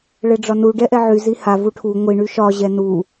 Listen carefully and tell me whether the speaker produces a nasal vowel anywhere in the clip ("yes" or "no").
no